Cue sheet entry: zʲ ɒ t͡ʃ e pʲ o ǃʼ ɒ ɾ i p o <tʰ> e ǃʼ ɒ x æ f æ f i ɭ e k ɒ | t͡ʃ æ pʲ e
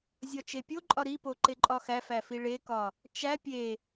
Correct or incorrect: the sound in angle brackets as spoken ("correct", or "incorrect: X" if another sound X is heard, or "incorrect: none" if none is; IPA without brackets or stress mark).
incorrect: ǃ